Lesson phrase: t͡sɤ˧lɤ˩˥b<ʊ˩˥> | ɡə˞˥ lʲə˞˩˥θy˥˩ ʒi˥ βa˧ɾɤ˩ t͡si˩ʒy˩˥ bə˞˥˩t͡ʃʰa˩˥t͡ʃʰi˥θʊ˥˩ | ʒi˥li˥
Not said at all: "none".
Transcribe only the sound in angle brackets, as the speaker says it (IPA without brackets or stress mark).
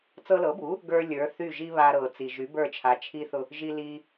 u˩˥